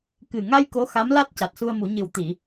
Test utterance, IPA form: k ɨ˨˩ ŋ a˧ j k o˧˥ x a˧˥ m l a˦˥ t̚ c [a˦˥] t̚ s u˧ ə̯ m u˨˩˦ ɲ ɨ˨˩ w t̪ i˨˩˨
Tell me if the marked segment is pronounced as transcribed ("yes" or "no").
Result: no